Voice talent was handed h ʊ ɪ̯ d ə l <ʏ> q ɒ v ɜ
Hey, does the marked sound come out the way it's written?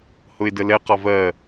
no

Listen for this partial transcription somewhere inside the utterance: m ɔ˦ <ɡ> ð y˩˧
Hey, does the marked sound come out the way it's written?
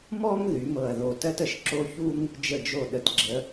no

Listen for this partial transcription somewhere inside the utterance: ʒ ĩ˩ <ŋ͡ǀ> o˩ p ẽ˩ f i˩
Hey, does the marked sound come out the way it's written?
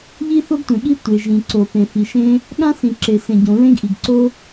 no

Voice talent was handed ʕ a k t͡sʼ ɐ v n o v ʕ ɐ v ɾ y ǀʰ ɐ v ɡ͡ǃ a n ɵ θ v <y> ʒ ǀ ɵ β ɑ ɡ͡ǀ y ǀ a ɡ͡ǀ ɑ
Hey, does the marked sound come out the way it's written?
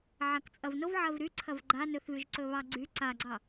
yes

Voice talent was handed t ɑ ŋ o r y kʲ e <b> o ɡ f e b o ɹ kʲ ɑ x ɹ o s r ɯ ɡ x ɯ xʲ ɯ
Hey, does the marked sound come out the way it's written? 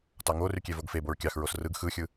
no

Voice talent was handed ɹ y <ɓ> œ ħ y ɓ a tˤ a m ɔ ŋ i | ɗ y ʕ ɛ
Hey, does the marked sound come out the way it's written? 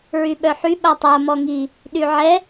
yes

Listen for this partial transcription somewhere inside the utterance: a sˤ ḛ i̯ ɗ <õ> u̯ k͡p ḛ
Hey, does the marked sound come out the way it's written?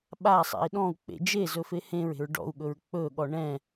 no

